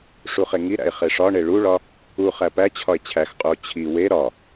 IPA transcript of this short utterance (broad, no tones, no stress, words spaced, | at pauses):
ʂuχeŋiɾæ̰e̯ χeʂɒɳe ɭuɭɒ | u χæpæt͡ɕʰɒe̯ t͡ɕʰæxqʼuo̯ t͡ɕʰi we ɾɒ